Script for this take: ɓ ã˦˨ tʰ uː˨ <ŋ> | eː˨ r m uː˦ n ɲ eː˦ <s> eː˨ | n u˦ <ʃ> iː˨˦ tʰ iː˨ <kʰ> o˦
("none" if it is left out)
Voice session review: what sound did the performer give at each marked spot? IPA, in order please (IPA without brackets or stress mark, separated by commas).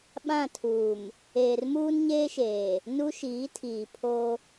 m, ʃ, ʃ, pʰ